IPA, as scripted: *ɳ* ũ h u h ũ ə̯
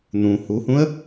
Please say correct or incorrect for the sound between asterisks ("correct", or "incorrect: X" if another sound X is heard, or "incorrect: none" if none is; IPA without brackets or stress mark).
incorrect: n̪